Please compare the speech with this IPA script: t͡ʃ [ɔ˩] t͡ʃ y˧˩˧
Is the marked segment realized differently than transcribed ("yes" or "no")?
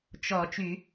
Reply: yes